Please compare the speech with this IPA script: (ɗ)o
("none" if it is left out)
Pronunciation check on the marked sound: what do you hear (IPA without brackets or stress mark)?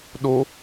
ɗ